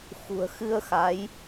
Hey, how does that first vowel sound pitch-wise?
low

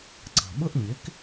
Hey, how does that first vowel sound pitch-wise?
low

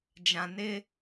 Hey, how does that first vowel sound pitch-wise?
low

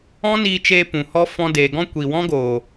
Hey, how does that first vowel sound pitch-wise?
high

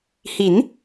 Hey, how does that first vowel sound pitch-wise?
rising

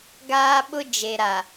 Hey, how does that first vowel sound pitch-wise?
high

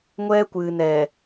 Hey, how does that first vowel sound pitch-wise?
high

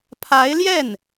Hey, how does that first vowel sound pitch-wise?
rising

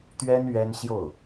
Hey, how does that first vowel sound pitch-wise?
high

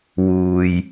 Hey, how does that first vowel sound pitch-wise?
low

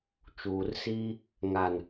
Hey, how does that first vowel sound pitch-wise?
low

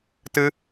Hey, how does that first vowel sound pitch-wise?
high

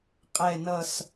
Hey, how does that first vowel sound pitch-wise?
low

